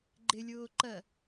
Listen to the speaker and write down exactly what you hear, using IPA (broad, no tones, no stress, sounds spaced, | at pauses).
ɡ͡ǃ ɪ lʲ ʊː ǃ ɜ